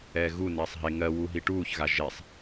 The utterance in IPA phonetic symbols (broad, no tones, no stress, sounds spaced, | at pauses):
ɛː ɣ u n ɛː sˤ ɦ e ŋ ɜ w u ɦ i ʈ uː ç ɣ a ʒ e sˤ